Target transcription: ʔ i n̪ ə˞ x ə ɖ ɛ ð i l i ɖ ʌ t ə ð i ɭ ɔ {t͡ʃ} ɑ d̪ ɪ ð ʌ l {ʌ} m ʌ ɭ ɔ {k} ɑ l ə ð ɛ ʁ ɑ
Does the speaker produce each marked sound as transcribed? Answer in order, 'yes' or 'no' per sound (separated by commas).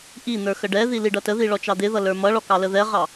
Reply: yes, no, yes